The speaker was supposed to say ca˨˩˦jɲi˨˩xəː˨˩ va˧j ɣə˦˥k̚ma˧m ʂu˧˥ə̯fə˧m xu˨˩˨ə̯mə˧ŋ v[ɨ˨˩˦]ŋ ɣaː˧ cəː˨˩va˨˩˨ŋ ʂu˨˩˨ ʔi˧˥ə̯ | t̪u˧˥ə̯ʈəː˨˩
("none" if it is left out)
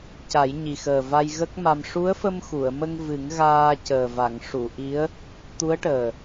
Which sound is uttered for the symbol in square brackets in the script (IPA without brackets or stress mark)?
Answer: ɨ˨˩˦